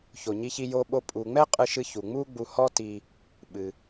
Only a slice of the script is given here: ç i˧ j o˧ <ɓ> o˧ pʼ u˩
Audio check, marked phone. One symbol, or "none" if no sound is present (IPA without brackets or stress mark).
ɓ